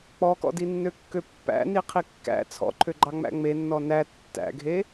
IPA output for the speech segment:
k͡p ɔ k ɔ̰ d i nː ø kː ø pː æ̰ n i qʰ i kː æ̰ t͡sʰ ɔ̰ ǃʰ ø ɡ͡ǃ ɑ ŋ͡m æ̰ ŋ͡m e nː ɔ n æ tː æ̰ ɡʱ e

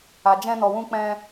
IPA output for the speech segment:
a˨ d͡ʒ ɛ̃˧ n ɔ˨ w ũ˧ k͡p ɛ̃˧

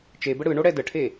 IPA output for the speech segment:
t͡ʃ e b ə ɽ ɯ ɳ o ɽ ɛ d ə ʈʰ e

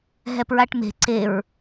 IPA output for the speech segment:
ɦ ɛ p ɹ a ʈ m e̤ ǀ e ɹ

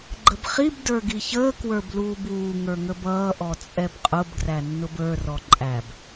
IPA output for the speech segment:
ɡ͡ǃ ə b χ i b d ə˞ ɡ i ç əː k w ə˞ b l uː b uː ŋ ə˞ ŋ ə b ʌː ʔ ɔ t͡sʼ ɛ b qʼ ʊ b ɡ r æ nː ʊ b ə˞ r ɔ ǃʼ æ b

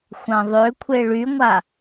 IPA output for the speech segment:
xʷ ã ðˤ ø kʷʰ e ɭ y ŋʷ a

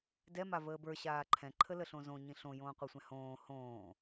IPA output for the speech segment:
d ɛ m a v əː b ə˞ ɕ aː ǃʰ ɛ̃ ǃʰ ə l ə ɬ õ z õ ɲ ĩ ɬ õ j õː qʷ ɛ sʷ ɛ̃ h õː h õː

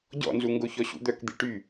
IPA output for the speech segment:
ɟ ɔ̰ n z u ŋ ɡ o ç ɔ ɕ ṵ d̪ œ k d̪ i ʈ y

